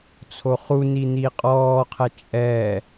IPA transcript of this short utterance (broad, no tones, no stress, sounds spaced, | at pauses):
t͡sʰ o χ u n i n i qʼ ɔː qʰ ɛ t͡ʃʼ ɛː